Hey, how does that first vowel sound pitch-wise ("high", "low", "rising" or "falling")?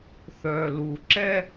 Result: low